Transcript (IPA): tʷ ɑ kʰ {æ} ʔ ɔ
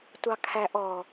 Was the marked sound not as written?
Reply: no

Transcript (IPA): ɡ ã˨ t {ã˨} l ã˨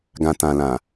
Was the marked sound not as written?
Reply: no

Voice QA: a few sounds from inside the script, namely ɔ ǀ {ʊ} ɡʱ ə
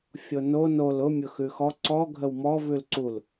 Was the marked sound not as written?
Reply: yes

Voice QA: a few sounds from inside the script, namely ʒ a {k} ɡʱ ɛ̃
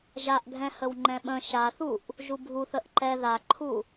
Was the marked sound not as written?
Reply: yes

